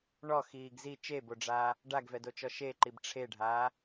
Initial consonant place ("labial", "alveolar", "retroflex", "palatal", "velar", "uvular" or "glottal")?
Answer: retroflex